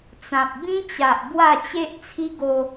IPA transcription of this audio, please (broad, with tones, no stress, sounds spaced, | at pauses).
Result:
t͡s ã˨ p̚ b ĩ˦ t͡ɕ a˨ ʔ b w a˥˧ t͡ɕ e˦ ʔ t͡sʰ i˦ ɡ o˧